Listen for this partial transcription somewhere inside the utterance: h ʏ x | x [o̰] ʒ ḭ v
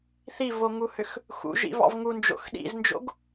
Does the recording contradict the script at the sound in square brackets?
yes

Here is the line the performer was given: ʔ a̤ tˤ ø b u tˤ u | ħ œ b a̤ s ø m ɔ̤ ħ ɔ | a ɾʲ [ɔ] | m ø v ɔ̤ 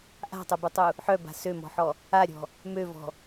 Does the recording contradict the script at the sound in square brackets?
yes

